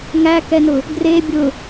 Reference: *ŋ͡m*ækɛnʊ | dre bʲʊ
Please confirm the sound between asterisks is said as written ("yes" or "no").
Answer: no